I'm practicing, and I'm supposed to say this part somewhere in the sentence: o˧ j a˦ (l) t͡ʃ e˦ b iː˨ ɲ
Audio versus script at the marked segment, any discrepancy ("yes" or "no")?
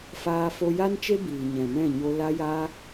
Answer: yes